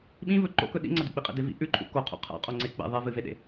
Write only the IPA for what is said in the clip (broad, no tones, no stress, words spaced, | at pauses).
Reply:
ɓĩvɵ ǃo̰kɵ ɗḭŋ͡ǀɐduk͡pi qʼḛdevḭ ʔʉǃʰṵ koqʰṵ qʰa̰ qʼoŋ͡ǀe k͡pḛ ðˤevɨveɗḛ